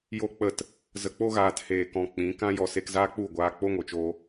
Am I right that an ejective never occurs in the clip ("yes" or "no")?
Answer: yes